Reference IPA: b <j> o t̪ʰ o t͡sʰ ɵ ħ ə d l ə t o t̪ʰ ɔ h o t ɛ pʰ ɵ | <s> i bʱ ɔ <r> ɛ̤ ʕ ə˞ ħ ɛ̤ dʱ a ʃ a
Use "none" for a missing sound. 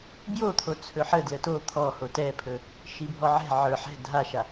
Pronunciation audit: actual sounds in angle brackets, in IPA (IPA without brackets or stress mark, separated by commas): j, ʃ, ʕ